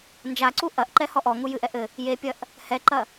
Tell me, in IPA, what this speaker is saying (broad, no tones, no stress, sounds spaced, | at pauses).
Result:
n d͡ʒ a ǀ u ʔ ɐ ʔ ǃ ɛ h ɔ ʔ ɔ ŋ u j ɨ ʔ ɛ ʔ ɘ | j e pʲ ɐ ʔ | h ɛ ǃ ɐ